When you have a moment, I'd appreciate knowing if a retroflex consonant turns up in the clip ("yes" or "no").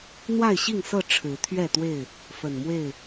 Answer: yes